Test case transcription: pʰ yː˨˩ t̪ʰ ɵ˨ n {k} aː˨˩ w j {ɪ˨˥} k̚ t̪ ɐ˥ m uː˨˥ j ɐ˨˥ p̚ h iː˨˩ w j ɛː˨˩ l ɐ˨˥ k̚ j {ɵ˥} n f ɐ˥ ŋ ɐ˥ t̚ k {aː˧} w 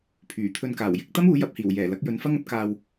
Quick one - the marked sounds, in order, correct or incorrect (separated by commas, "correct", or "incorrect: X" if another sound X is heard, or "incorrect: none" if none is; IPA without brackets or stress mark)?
correct, correct, incorrect: ɵ˨˥, correct